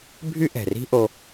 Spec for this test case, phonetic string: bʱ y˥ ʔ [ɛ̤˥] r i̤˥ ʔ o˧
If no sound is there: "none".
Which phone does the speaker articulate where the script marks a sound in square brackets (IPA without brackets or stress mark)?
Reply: ɛ̤˩